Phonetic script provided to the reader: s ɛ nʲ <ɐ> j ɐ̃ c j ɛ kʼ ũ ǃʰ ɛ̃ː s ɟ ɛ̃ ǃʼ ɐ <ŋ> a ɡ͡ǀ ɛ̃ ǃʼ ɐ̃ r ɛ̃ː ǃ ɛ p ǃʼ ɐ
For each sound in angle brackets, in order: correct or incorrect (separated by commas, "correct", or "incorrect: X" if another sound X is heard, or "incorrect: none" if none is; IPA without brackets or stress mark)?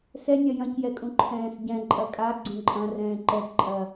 correct, incorrect: kʼ